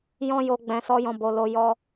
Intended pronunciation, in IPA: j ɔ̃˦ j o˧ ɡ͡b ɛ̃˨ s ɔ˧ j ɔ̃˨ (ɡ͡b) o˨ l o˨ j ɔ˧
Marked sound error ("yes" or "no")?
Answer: yes